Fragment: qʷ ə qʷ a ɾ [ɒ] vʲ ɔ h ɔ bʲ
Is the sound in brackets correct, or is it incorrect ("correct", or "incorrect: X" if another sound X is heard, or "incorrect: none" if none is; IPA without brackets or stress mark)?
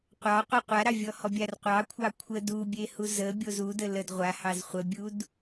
incorrect: ɑ